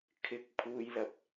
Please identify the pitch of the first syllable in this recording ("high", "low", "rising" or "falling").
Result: rising